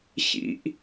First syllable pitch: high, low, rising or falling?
high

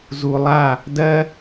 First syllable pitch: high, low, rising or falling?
low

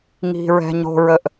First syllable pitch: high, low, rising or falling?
low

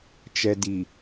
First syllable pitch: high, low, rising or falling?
low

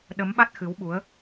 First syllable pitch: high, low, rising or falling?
rising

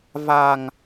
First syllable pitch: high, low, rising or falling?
low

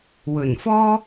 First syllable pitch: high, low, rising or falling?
low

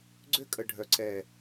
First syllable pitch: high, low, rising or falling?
high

